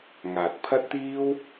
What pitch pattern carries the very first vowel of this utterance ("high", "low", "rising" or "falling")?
low